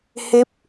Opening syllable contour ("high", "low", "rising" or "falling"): rising